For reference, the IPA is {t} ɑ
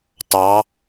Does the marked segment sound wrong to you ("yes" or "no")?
no